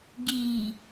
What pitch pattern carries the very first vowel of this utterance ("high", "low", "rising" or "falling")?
low